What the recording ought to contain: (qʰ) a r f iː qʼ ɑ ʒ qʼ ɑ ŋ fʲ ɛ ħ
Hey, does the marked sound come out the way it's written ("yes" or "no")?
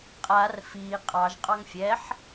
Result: no